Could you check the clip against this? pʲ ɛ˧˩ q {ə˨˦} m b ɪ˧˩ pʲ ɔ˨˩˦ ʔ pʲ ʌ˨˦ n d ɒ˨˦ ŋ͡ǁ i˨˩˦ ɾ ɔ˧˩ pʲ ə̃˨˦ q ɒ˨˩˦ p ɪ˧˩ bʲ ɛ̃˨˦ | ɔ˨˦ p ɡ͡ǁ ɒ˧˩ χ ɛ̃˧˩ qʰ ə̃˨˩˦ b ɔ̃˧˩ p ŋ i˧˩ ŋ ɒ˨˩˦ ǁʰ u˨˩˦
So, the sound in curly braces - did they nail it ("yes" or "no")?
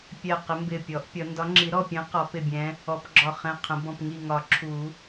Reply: no